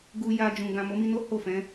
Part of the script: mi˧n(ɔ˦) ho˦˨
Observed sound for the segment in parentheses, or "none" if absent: o˦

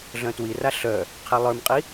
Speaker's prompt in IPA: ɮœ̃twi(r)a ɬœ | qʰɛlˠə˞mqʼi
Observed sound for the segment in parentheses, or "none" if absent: r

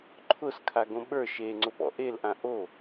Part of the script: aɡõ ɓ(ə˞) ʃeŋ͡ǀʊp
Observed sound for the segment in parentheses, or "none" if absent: ə˞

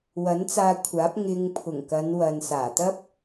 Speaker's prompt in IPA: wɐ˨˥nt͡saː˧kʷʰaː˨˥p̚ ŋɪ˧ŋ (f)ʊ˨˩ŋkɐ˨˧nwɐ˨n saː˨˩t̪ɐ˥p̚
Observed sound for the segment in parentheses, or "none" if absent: pʰ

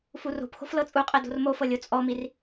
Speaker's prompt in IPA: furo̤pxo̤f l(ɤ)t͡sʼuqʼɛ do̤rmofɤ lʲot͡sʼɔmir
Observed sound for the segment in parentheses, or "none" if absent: ɤ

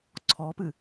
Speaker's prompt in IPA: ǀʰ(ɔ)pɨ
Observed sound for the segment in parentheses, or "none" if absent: ɔ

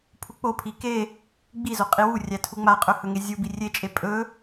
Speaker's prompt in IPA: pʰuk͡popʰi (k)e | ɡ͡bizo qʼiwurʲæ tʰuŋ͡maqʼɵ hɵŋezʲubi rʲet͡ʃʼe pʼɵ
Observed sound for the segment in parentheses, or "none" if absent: k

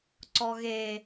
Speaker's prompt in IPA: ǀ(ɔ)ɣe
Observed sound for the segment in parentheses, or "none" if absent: ɔ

